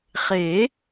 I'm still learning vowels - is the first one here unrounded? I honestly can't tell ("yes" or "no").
yes